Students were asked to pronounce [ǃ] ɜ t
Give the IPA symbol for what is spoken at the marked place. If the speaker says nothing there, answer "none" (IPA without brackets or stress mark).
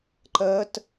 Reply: ǃ